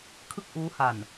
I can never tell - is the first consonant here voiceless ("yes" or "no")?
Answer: yes